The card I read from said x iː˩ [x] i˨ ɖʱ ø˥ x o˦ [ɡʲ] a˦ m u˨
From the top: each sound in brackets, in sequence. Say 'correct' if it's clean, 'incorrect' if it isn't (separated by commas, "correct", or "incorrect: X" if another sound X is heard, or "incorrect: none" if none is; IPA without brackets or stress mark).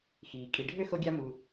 incorrect: kʼ, correct